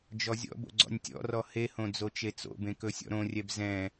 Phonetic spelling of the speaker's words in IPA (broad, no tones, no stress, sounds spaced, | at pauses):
d͡ʒ ɔ zʲ ɔ̰ b o̰ ɡ͡ǀ ɔ̰ nʲ tʲ ɔ̰ r ɔ h e h õ d͡z o t͡ʃ e t͡s o̰ b ẽ k ɵ sʲ ɔ̰ ɾ õ rʲ ɛ b z ɛ̃